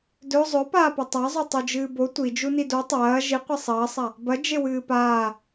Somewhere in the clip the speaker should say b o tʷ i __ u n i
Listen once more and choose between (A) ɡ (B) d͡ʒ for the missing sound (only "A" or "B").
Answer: B